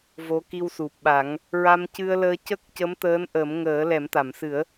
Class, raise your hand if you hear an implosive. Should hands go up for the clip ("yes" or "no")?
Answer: yes